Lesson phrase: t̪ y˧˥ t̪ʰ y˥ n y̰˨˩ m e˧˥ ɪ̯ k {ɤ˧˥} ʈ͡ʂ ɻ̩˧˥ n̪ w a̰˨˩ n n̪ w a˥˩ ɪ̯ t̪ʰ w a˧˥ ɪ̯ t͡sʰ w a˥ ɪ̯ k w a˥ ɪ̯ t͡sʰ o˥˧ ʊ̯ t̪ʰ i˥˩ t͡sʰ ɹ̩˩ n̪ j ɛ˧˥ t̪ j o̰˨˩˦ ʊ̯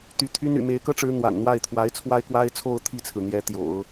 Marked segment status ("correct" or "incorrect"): incorrect